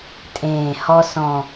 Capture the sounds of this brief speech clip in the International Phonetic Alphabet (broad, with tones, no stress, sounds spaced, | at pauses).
tʼ ẽː˧˩ h ɔ˦˥ s ɔ̃˧˩